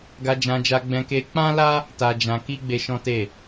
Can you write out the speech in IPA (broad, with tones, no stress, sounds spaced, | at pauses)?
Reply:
ɡ a˧ d͡ʒ ã˧ d͡ʒ a˧ ɡ͡b ɛ̃˧ k e˧ k͡p ã˦ l a˦ | t a˧ d͡ʒ ã˧ k i˦ ɡ͡b e˧ ʃ ɔ̃˦ t e˦˨